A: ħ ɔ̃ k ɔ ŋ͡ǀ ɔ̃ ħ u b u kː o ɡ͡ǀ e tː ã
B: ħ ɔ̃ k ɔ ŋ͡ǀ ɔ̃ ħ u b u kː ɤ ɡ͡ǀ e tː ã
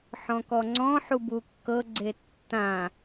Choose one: B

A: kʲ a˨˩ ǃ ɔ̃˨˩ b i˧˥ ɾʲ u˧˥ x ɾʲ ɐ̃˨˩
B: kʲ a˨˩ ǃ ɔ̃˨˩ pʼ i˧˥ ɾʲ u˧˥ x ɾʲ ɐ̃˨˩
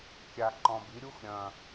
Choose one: A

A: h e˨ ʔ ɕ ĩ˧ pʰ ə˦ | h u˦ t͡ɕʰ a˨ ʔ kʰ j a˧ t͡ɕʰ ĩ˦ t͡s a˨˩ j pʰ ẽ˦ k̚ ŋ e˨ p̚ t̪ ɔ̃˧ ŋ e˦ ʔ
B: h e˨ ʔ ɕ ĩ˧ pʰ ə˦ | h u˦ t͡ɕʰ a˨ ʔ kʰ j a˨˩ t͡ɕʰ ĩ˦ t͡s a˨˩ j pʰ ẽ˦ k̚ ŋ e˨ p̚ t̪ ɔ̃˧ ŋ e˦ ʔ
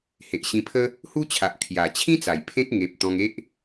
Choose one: B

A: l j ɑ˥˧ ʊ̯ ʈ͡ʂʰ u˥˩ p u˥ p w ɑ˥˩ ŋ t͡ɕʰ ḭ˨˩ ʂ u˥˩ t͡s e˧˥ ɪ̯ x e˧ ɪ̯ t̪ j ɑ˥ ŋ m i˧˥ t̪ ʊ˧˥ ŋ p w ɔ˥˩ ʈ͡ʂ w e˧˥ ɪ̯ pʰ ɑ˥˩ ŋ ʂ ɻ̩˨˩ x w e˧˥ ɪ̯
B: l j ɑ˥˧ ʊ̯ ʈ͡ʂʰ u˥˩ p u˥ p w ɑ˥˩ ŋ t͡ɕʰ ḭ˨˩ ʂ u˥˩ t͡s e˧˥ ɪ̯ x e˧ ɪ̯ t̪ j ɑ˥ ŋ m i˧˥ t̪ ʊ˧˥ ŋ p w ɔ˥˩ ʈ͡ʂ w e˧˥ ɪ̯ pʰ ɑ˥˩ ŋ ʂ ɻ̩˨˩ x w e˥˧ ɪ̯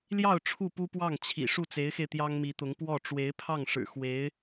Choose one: A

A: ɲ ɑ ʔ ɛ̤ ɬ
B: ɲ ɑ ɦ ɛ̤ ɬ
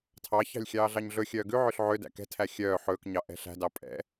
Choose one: A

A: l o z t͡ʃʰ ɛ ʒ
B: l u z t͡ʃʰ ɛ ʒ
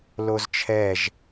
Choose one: A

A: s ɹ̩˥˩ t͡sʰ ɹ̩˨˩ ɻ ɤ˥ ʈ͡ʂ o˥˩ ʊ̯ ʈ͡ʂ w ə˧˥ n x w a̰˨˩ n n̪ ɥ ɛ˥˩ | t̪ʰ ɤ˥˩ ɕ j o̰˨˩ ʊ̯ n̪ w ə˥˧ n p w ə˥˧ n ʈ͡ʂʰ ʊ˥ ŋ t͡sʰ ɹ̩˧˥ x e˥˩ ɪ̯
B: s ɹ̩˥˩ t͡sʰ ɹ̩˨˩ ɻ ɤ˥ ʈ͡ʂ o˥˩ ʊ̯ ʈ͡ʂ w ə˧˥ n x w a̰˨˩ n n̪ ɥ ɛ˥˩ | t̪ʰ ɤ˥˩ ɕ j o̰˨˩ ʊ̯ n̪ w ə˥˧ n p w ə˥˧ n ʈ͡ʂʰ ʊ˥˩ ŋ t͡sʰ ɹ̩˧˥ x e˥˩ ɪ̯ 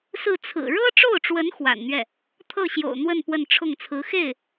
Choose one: B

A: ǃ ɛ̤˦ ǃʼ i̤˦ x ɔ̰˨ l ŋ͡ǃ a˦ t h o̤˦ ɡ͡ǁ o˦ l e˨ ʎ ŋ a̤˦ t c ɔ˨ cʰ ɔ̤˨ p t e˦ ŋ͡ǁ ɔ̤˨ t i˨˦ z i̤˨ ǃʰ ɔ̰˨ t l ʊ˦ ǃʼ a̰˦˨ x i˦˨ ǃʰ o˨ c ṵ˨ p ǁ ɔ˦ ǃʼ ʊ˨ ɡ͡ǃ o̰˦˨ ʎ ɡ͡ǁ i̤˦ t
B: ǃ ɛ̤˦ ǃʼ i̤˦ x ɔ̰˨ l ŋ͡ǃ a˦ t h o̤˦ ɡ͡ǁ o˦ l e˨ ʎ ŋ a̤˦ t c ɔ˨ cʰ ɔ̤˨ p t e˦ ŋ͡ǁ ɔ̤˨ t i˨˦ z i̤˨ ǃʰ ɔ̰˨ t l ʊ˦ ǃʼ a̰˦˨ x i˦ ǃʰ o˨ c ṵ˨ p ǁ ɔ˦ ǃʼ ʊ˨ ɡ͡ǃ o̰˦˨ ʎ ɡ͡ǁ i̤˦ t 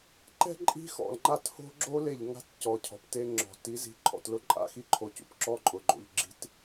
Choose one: B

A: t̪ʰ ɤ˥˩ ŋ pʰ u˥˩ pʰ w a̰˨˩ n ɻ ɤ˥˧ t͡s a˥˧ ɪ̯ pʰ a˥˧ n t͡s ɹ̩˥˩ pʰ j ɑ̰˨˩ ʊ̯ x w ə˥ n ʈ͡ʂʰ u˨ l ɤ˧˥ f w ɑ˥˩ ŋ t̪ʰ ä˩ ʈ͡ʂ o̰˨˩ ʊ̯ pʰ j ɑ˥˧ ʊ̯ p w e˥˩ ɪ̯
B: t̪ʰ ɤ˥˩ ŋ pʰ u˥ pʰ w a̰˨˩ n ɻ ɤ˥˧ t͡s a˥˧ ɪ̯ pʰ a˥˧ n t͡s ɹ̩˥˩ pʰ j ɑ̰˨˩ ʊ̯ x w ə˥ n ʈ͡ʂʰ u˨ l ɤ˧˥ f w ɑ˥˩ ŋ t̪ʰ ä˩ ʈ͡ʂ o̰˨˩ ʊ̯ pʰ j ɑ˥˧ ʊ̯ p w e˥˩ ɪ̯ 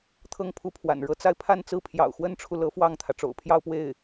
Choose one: B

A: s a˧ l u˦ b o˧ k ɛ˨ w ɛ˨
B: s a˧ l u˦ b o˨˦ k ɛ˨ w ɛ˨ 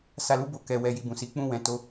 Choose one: A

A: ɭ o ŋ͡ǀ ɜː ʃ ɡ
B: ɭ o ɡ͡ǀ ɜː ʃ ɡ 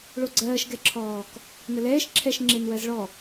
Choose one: B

